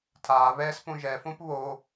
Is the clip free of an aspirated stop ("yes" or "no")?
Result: no